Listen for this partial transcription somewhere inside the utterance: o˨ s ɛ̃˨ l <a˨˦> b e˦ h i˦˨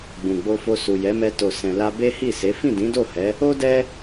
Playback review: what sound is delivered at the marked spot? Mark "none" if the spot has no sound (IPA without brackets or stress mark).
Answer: a˧